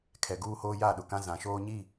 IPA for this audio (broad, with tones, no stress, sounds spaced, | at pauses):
kʰ ɛ˨ ɡ uː˦ h oː˦ j a˦˨ ɗ ʊ˨ k ã˦ z ã˨ ʃ oː˦ ɲ i˦˨